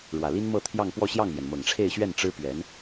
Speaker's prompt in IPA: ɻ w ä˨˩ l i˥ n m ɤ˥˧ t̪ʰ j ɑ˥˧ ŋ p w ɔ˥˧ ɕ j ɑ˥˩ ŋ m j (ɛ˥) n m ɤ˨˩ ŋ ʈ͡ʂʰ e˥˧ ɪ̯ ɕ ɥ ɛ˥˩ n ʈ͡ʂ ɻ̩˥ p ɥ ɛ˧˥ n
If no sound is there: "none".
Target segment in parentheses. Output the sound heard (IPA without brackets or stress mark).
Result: ɛ˩